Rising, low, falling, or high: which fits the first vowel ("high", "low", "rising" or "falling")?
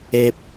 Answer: high